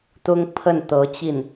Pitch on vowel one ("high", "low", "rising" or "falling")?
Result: high